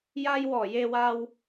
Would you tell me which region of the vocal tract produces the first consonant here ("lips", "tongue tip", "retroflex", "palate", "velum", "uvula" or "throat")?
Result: palate